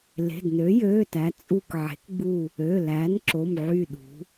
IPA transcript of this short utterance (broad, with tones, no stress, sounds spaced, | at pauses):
l e̤˩˧˩ d n ø˩˥ j øː˩˧˩ t æ˩˧ t͡sʼ u˧˩ k ʕ e̤˩˥ k ɡ͡b u˧˩ | ø˩˧˩ l æ˩˥ n ǁ o˩˧˩ m ʕ y˧˩ ɗ ṳ˩˧